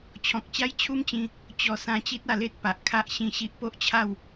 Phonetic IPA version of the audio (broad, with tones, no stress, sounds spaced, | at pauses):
t͡ɕʰ ɔ̃˨ k̚ t͡ɕ a˦ j t͡ɕʰ u˦ m t͡ɕ ĩ˧ | t͡ɕ ɔ˧ s ã˧ t͡ɕ i˦ t̚ a˧ l e˦ t̚ p a˨ ʔ kʰ a˦ ʔ ɕ ĩ˥˧ ɕ i˦ ʔ p o˦ ʔ t͡ɕʰ a˥˧ w